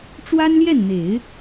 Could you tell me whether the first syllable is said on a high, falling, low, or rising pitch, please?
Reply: high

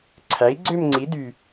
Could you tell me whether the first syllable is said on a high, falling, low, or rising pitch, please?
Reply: rising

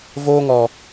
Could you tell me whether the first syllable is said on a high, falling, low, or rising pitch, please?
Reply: high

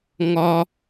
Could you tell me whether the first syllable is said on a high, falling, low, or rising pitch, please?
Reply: high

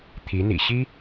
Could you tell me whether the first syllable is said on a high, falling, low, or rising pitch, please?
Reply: rising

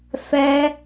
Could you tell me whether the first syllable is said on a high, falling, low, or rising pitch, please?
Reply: high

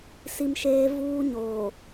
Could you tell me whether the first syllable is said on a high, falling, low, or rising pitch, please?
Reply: high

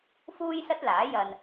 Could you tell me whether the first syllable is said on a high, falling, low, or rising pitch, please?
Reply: high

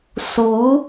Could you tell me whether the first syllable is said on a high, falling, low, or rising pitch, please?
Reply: rising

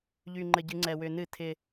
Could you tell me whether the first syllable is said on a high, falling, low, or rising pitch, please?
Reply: low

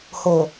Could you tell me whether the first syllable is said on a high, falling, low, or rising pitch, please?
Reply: low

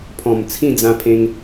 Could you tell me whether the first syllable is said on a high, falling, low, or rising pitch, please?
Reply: low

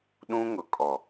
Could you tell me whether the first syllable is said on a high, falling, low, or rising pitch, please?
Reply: high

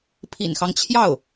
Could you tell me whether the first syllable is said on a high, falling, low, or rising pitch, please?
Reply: low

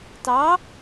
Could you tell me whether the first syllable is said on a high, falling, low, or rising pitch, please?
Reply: rising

